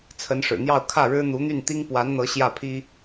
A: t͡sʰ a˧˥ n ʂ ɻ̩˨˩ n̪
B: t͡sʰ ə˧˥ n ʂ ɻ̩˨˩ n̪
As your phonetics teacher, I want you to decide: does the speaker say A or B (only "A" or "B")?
B